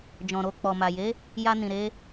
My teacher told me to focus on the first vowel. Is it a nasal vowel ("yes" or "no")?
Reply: yes